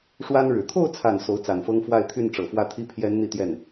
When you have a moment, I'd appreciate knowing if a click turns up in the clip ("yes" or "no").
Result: no